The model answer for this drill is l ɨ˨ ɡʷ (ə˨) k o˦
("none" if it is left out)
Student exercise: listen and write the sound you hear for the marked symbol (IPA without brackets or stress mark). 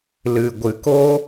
ɨ˨